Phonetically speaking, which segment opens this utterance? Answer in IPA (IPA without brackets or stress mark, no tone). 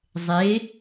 zˤ